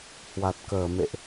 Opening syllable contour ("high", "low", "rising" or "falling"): low